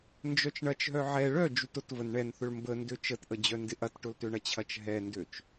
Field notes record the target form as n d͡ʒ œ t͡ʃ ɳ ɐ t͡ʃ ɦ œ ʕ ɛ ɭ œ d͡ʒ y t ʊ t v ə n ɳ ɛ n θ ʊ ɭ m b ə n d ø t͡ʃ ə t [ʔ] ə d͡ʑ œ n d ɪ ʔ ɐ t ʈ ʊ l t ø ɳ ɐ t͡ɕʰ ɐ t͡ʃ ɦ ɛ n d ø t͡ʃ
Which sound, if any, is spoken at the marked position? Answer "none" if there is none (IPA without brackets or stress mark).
ʔ